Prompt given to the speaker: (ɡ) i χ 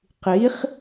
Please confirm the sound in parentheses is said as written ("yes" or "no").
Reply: no